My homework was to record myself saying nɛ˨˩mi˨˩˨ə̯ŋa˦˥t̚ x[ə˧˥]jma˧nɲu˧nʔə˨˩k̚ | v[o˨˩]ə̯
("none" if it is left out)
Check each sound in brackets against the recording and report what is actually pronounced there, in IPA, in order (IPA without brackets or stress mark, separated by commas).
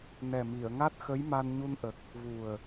ə˧˥, u˨˩